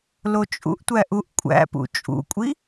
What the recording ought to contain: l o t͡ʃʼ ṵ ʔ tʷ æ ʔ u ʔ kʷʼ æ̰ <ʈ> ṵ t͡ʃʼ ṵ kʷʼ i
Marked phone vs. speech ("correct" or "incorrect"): incorrect